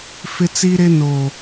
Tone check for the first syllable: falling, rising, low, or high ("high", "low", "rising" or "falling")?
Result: high